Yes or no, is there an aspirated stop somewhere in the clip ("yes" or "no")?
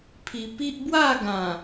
yes